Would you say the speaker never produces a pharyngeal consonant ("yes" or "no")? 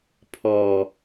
yes